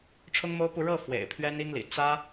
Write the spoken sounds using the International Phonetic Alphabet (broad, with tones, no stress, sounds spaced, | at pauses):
ʈ͡ʂʰ ʊ˥ ŋ m o˥ ʊ̯ p u˥˧ ɻ ɤ˥˩ f w ḛ˨˩ ɪ̯ pʰ ɥ ɛ˥ n i˥ ŋ l ḭ˨˩ t͡s ä˥